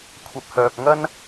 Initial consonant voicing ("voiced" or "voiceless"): voiceless